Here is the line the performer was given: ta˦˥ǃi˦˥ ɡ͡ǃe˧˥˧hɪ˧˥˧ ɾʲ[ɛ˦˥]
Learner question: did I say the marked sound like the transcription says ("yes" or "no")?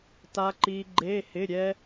yes